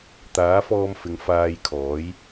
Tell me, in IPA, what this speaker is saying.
t̪ aː˨˥ f ɔː˧ m f ɪ˨˧ ŋ f aː˧ j kʰ ɔː˨˥ j

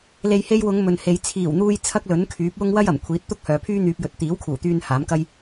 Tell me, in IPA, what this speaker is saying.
l e˨ j h e˧ j w ʊ˨˧ ŋ m ɵ˨ n h e˨˧ j t͡sʰ iː˨˩ w n̪ uː˧ j t͡sʰ ɐ˥ k̚ l ɵ˨˥ n kʰ yː˨˥ p̚ w ʊ˥ ŋ w ɐ˥ j ɐ˨˩ m kʷʰ iː˨˥ t̚ t̪ ʊ˥ k̚ h œː˨˧ pʰ yː˥ n̪ yː˧ p̚ j ɵ˨˥ t̚ t̪ iː˨˥ w kʰ uː˨˩ t̪ yː˧ n h aː˨˥ m k ɐ˥ j

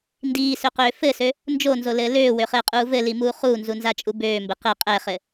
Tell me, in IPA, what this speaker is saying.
n d iː s ø q øː f ɘ s ø | n d͡ʒ o n z o l ɘː l øː w ø χ ɘː qʼ uː v ɘ l i m uː χ uː n z u n z a t͡ʃʼ u b øː m b ɘ q ɘ qʼ ɛ χ ɘ

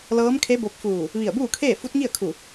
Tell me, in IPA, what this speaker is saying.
l ɤː˧˥ m kʰ e˧˥ b o˧ p̚ f uː˧˩ | ʋ i˧˩ ə̯ b uː˥˨ kʰ eː˥˨ f u˧˥ t̚ ŋ i˥˨ ə̯ kʰ u˧˩

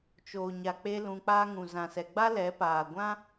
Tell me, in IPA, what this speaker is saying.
t͡ʃ oː˨ ɲ a˨ k͡p e˦ l ũ˧ k͡p aː˦ ŋ ũ˨ z ã˧ s ɛ˧ ɡ͡b a˦ l ɛ˨˦ p aː˨ ɡʷ ã˦

